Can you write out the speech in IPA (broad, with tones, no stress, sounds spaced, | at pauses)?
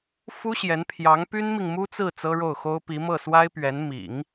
f u˥ ɕ j ɛ˧˥ n pʰ j ɑ˧˥ ŋ p y˥ n m i˨ ŋ m u˥ t͡s ɹ̩˥˩ t͡s ɤ˥ ɻ o˥˩ ʊ̯ x o˥ ʊ̯ p i˧˥ m ɤ˥˩ s w a˥ ɪ̯ p ɥ ɛ˧˥ n m ḭ˨˩˦ ŋ